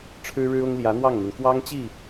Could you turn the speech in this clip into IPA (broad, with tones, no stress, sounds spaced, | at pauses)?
ʈ͡ʂʰ ɻ̩˥ ɻ ɻ̩˥ ʊ˥ ŋ l j ä˧˥ n̪ w ɑ˥˩ ŋ n̪ y˩ n k w ɑ˥ ŋ t͡ɕ i˥˩